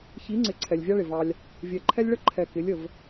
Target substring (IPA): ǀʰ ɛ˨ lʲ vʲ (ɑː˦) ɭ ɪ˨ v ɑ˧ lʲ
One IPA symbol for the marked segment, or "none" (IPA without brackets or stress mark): ɑ˦